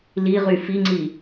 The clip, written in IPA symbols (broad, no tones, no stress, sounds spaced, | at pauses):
l i ʁ y f i ŋ͡ǀ i